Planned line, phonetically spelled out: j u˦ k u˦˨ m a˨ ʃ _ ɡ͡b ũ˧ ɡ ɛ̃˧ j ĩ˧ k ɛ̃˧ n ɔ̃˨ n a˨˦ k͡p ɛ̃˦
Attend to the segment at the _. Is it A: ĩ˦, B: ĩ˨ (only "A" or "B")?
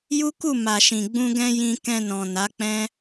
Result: B